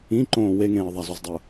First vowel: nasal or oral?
nasal